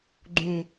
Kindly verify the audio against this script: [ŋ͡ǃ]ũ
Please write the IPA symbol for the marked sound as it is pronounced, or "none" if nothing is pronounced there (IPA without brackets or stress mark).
ɡ͡ǃ